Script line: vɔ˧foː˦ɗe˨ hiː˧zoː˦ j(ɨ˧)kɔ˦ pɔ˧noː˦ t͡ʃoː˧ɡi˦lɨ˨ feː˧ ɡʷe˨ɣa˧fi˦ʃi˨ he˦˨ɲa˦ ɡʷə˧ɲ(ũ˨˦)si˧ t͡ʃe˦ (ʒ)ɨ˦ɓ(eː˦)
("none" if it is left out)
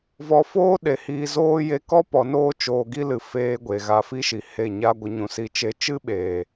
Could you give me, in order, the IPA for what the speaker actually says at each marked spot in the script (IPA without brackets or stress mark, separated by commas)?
e˧, ũ˨˦, t͡ʃ, eː˨